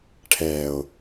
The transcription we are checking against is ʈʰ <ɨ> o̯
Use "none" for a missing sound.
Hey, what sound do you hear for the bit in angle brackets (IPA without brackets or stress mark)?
ɛ